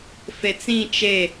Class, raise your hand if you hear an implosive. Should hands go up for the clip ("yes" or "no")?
no